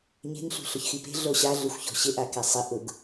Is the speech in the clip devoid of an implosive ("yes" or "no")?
yes